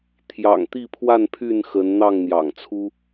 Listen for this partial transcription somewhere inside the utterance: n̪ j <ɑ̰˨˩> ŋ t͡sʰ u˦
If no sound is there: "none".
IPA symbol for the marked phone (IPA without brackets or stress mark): ɑ̰˨˩